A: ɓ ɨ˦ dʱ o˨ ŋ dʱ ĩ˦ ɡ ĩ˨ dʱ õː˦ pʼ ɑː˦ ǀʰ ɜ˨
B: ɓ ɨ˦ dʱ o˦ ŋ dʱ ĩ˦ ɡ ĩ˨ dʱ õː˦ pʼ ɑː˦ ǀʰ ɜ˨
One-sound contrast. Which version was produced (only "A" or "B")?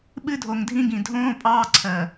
A